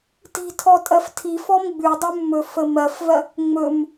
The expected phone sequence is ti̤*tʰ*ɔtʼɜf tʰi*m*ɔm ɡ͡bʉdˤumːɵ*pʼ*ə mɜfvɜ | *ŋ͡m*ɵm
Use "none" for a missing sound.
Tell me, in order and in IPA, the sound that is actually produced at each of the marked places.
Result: tʰ, f, f, ŋ͡m

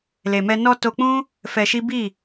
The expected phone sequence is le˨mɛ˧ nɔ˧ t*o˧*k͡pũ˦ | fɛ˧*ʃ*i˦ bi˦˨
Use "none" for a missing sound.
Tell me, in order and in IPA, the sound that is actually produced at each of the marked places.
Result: o˧, ʃ

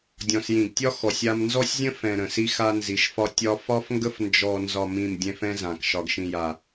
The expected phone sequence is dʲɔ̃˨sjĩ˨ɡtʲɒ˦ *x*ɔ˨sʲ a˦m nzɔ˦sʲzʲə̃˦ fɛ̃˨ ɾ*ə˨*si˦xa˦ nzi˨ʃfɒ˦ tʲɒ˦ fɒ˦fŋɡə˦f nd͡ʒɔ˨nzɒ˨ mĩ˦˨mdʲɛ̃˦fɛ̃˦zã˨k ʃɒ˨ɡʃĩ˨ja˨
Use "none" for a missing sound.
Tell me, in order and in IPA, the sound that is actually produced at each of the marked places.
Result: x, ə̃˨

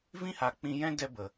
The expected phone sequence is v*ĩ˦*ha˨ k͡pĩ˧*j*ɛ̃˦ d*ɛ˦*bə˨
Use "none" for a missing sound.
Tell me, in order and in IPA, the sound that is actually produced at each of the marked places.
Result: ĩ˦, j, ɛ˦

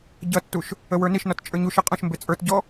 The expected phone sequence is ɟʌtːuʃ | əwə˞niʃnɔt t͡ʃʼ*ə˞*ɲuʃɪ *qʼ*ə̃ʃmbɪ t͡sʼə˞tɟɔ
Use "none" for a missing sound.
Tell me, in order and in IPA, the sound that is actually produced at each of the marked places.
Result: ə˞, qʼ

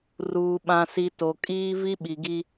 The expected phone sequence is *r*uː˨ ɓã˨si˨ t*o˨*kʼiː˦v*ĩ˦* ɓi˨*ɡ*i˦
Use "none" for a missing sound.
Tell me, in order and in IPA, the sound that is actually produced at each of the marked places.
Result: r, o˨, i˦, ɡ

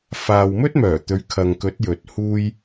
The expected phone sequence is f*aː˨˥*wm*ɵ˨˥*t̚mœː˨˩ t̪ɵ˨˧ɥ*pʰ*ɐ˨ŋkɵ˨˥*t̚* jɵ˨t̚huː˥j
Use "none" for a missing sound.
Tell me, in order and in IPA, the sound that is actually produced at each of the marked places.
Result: aː˨, ɵ˥, kʰ, t̚

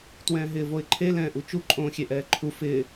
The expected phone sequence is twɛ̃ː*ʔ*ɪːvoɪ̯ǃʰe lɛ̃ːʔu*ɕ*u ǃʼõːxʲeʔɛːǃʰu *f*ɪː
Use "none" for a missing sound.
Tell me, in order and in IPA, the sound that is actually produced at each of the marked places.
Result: ɦ, t͡ʃ, f

